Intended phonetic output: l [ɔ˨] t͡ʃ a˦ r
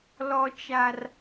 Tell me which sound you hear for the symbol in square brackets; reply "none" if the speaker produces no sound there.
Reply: ɔ˦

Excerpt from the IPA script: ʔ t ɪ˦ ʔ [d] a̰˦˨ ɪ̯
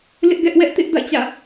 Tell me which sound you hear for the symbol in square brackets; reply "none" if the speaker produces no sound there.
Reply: d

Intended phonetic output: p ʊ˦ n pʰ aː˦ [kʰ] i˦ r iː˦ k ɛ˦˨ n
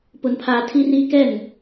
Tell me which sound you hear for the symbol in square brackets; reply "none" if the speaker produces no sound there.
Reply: tʰ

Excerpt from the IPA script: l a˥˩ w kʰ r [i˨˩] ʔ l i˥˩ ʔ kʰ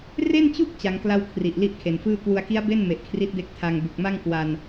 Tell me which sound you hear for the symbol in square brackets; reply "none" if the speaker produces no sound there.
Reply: i˨˩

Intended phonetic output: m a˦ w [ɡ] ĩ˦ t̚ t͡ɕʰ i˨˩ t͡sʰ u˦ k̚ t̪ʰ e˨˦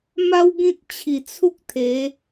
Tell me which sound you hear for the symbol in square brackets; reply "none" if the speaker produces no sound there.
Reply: ɡ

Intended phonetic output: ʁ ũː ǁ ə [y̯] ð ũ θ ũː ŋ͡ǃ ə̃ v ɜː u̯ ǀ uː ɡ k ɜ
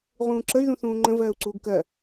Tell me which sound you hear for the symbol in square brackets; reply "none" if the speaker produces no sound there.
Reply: y̯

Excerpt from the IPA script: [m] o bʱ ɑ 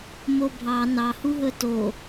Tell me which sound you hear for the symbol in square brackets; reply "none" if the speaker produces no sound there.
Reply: m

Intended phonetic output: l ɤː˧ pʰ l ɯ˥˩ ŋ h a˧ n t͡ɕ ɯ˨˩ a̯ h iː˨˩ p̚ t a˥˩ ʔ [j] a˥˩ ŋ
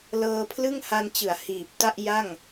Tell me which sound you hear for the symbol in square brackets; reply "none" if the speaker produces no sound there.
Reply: j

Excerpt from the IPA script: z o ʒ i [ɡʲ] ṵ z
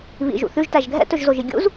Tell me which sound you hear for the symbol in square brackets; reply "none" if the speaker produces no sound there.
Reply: ɡʲ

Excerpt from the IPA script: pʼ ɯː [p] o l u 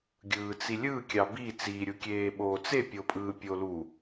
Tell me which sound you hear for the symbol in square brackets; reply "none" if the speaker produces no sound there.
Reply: pʲ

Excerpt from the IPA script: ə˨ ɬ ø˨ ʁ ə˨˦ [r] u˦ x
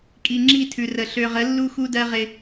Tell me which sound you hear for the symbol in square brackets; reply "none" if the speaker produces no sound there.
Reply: lː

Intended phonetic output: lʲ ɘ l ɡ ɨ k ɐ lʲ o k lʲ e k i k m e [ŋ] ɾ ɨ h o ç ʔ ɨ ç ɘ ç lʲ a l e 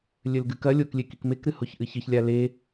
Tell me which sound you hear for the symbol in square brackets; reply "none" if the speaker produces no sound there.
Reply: k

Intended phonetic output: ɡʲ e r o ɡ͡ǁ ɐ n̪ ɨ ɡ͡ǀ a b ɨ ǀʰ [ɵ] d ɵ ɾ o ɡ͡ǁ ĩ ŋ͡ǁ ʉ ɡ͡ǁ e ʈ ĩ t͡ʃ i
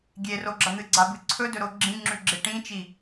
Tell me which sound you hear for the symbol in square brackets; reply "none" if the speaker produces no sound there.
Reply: ɵ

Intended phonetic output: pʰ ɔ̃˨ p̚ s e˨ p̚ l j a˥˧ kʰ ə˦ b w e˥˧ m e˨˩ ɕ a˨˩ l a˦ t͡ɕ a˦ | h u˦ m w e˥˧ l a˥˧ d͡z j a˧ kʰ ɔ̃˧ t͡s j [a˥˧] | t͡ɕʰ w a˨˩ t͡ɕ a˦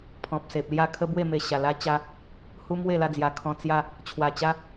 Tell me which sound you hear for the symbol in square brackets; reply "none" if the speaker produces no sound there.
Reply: a˥˧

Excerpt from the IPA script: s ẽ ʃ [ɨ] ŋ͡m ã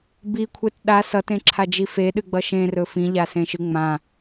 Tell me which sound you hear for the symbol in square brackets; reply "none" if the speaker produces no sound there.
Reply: ɨ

